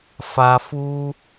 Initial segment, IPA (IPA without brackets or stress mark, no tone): f